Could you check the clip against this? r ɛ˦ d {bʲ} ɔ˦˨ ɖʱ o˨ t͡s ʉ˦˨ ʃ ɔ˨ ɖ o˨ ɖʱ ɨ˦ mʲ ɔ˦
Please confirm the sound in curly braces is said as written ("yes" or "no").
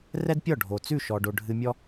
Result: no